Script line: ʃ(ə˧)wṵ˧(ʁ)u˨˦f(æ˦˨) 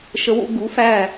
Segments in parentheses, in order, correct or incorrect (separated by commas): correct, incorrect, correct